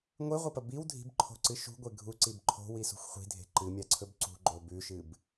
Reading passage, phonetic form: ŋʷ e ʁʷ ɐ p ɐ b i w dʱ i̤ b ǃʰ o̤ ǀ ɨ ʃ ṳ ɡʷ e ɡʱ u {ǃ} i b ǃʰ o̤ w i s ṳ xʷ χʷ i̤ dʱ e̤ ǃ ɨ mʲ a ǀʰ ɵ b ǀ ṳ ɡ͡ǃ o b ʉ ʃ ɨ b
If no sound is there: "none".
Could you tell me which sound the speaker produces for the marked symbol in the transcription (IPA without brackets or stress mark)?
ǀ